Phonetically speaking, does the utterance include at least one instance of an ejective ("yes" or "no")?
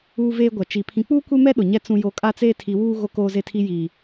yes